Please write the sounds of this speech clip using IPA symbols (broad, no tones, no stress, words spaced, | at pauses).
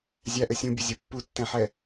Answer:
zʲæʔɘ sʲũbʲozʲo pːutːɛ̃ħɛ